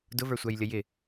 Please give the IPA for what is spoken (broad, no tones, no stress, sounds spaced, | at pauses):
d ʊ v ə˞ sʷ æ j lʲ ə j ɪ